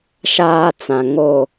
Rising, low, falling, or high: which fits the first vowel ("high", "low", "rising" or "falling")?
high